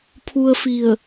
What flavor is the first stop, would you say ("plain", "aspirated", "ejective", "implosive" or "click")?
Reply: aspirated